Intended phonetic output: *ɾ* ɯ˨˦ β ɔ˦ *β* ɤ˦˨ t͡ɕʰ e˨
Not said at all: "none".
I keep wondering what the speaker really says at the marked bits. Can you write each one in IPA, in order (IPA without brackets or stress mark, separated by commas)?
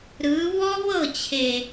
ɾ, β